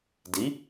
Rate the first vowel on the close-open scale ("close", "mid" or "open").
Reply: close